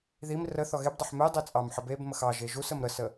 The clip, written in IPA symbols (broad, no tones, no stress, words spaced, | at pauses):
ðim rə θɔɣebdˤeħ me dˤit͡sʼɑmħəb ebməx ɑ ʒeʒusəm ɾəsə